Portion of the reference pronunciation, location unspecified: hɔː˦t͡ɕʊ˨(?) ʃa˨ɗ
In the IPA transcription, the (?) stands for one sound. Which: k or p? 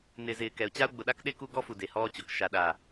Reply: k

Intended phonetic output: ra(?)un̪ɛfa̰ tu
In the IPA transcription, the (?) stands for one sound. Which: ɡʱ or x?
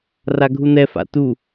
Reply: ɡʱ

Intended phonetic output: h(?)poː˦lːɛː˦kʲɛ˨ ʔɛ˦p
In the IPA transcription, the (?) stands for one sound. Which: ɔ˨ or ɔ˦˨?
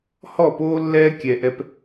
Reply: ɔ˦˨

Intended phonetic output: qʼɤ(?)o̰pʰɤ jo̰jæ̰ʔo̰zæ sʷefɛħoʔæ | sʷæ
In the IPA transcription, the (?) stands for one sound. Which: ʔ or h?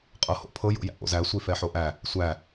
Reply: h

